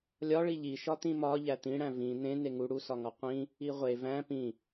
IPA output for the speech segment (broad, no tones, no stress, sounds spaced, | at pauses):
lʲ ɒ ɭ i ʎ i ʃ ɒ t̪ ĩ m ɒ ʎ æ t̪ ĩ ɽ æ̃ v ĩ n̪ ẽ n e ŋ u ɽ u s ɒ ŋ ɒ qʷ ĩ | i ʁʷ e v æ̃ p ĩ